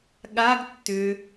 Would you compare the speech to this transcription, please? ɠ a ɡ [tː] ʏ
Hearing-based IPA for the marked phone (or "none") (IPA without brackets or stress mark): tː